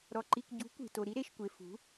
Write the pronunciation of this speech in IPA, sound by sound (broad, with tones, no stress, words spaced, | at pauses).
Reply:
ɾɔ˨ǃi˨kɟṳ˨˦ kʷi̤˨to˨ ɾi˦ɾe˨ʃkʷe˨ fṳ˨˦